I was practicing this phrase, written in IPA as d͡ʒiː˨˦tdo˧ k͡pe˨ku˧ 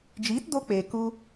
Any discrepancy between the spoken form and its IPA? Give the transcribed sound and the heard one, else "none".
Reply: none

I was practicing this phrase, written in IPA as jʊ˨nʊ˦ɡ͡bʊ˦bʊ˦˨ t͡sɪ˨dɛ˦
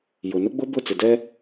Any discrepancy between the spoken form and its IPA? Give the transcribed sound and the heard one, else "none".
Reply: none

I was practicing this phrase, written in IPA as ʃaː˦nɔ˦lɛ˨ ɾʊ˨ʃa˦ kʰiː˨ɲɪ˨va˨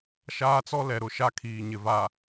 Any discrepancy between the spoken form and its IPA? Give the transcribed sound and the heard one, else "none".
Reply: n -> t͡s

